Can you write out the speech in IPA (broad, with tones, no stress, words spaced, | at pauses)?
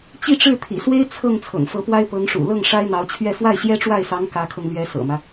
t͡ɕi˥˧ʈ͡ʂɻ̩˥˩ t̪ʰḭ˨˩swe˥ɪ̯ t͡sʰɤ˥˩ŋ t͡sʰɤ̰˨˩ŋfɤ˧˥pwa˥ɪ̯ pɤ˧˥ŋʂṵ˨˩ lɤ˥˩ŋ ʂa˥ɪ̯n̪ɑ˧˥ʊ̯t͡ɕʰɥɛ˥˧ fwa˥˩ɪ̯ɕjɛ˥ʈ͡ʂwa˥˩ɪ̯sɑ˧˥ŋ kä˧˥kʰɤ˧ŋlɥɛ˧˥ sɤ̰˨˩mä˦